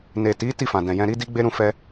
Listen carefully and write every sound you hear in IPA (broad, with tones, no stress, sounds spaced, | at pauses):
n e˨ t i˨˦ t i˦˨ f ã˨ d ɛ̃˨ j ɛ̃˧ ɾ i˦ d i˦ ɡ͡b e˦ ɾ ũ˦˨ f ɛ˧